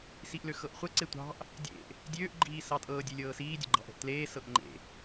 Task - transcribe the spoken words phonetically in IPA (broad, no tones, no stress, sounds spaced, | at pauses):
s i ʔ l ø x ɤ ʔ χʷ ə ǀ e tʷ ɑ̤ ʔ | dʲ ḛ ʔ | dʲ øː ʔ ɡ͡ǃ iː s ɑ tʼ ɤː dʲ e lʲ ɤː s iː dʲ ə̰ ɡ͡ǃ ɑ̤ ʔ ə̤ ʔ t l eː s ɤ ʔ ŋ͡ǃ ḛ